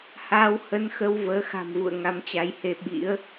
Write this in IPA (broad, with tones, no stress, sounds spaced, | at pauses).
h aː˧ w h ə˧ n x ə˧ w v əː˨˦ x a̤˨˩ m v ṵ˧˨ ə̯ ŋ a˨˦ m t͡ɕ a˨˦ j h e˧ ɓ ḭ˧˥ ə̯